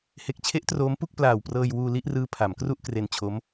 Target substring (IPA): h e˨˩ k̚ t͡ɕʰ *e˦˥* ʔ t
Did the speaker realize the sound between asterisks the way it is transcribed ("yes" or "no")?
yes